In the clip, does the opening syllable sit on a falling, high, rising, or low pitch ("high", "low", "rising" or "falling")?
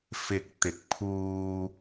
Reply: low